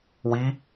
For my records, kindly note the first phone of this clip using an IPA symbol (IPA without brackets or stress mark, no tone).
w